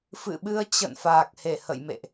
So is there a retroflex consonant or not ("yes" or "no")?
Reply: no